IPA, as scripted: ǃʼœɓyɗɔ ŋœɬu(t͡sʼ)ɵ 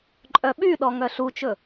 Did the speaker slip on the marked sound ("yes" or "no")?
yes